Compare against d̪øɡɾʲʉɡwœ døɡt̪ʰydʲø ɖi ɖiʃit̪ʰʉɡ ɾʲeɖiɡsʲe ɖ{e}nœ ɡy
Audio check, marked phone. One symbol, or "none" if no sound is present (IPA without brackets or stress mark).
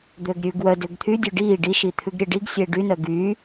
y